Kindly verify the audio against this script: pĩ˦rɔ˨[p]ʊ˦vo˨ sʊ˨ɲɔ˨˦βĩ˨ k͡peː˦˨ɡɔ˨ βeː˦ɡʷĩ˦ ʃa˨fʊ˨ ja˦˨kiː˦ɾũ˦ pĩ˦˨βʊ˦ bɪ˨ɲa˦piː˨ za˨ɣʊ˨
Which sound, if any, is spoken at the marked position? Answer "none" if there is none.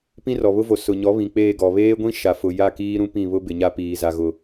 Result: β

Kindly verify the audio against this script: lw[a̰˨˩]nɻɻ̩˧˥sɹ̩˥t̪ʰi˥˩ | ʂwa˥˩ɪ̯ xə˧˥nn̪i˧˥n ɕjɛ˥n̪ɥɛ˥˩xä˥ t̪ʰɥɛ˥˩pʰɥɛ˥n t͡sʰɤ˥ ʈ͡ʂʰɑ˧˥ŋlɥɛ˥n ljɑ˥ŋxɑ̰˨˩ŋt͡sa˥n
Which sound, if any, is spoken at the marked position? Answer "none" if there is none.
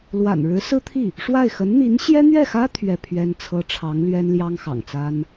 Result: a̰˨˩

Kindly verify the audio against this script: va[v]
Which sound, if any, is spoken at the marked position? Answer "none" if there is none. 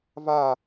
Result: none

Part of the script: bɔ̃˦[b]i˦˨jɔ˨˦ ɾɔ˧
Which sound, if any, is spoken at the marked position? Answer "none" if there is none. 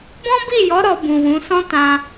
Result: b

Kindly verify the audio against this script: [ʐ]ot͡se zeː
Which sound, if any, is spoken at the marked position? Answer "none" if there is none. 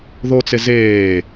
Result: ð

